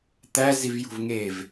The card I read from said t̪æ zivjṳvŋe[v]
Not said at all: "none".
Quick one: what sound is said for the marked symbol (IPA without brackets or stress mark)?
v